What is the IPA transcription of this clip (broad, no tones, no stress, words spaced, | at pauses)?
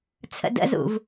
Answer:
t͡sʰə̰də̰zṵv